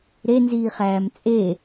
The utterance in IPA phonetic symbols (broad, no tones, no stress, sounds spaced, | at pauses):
ɾ e n z iː χ æː m t͡sʼ e